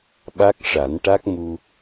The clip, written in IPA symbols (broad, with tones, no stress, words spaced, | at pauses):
ɓa˦˥k̚ʂa˨˩˦nʈa˦˥k̚ mu˧